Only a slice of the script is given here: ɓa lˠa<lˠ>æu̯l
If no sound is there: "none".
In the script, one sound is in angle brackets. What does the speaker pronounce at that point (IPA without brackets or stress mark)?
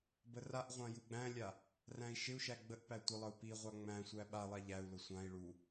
ʎ